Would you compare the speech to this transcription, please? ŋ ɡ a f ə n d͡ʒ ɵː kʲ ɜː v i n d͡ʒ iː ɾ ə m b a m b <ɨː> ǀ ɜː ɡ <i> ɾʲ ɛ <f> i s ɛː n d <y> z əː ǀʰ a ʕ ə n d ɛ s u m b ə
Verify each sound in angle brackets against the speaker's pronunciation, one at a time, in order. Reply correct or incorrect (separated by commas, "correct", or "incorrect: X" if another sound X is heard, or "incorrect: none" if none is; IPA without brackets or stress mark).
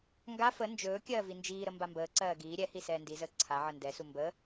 incorrect: əː, incorrect: iː, incorrect: h, incorrect: i